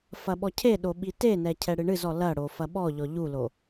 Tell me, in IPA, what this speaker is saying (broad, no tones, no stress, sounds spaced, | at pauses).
f ɐ ɓ ɔ cʰ e ɗ o ɓ i t e n ɛ cʰ ɛ ɽ ɨ ɳ ɨ z ɔ l ɐ ɽ o f ɐ ɓ ɔ ʎ ɔ ʎ u l o